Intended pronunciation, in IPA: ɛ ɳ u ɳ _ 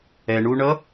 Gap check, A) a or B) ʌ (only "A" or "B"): B